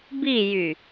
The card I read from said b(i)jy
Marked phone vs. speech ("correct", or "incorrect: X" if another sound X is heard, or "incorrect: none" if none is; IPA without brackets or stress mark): correct